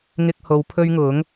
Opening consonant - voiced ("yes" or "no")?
yes